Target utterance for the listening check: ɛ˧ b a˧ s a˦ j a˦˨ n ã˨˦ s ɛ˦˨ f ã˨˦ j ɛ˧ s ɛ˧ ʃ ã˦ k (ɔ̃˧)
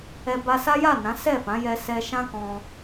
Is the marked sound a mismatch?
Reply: no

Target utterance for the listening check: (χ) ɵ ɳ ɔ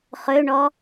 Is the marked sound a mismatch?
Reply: no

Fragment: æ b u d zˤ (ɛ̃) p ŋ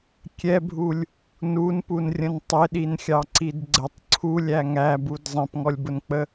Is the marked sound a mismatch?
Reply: no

